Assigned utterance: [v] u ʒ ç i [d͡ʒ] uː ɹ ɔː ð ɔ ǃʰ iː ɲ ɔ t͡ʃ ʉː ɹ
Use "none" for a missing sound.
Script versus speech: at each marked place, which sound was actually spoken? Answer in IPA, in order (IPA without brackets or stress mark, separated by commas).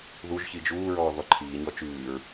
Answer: ð, d͡ʒ